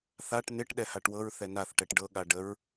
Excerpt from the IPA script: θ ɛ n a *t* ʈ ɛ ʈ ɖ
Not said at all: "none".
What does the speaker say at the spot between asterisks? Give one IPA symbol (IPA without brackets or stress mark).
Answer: θ